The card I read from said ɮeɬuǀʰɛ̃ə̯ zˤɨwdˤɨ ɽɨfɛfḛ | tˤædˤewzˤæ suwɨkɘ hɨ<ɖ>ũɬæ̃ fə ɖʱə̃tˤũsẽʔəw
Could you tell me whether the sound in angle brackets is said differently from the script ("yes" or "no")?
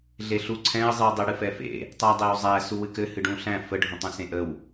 no